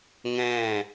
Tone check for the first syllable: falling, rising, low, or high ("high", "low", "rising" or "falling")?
falling